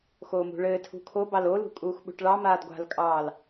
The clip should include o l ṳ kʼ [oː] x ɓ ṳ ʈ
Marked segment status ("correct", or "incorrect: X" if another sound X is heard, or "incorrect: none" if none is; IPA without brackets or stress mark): incorrect: uː